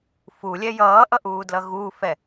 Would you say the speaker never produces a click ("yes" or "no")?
yes